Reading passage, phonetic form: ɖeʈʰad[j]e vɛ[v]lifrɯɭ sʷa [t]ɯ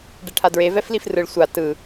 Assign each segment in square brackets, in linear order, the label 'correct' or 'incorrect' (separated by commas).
incorrect, incorrect, correct